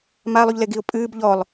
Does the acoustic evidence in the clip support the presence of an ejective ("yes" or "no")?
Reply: yes